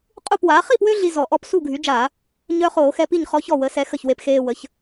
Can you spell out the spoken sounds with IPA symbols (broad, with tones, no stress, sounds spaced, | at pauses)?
qʼ u˥˩ p w aː˩˥ χ i˥˩ p w ø˦ ɮ i˦ z ɔ˧˩˧ ʔ ɔ˦ p s u˥˩ ɡʱ y˩˥ d͡ʒ aː˧˩˧ | ɲ œ˦ χ oː˧˩˧ x ɛ˦ p i˥˩ ɲ χ ɔ˦ ç ɔ˥˩ w ə˩˥ s ɛ˩˥ x ə˥˩ ç w e˦ p x eː˦ w ə˩˥ ç